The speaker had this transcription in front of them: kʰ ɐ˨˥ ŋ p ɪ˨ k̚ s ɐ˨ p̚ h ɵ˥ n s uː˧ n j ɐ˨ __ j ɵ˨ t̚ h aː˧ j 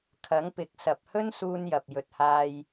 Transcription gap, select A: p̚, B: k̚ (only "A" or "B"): A